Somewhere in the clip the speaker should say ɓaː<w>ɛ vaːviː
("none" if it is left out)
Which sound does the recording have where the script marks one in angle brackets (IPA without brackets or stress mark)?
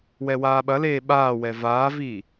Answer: w